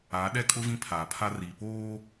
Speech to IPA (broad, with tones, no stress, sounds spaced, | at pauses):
a˨˦ ɗ ɛ˦ kʼ ʊ˦ v ĩ˦ pʰ aː˨ pʰ a˦ r iː˨ p oː˦